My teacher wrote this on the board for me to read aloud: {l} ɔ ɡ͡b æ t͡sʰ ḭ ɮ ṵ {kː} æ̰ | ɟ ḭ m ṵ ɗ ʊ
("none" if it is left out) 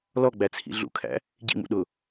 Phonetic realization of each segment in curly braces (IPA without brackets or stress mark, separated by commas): l, kʰ